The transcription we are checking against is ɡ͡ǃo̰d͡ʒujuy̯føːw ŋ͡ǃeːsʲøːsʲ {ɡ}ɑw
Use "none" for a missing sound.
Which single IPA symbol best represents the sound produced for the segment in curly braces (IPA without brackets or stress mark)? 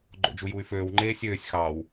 x